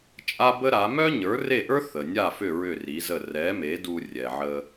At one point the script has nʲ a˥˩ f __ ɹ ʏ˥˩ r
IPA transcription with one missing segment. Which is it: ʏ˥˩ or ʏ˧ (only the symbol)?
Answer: ʏ˥˩